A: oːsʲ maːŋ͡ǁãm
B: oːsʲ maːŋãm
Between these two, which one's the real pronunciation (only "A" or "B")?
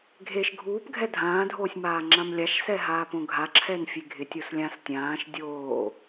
A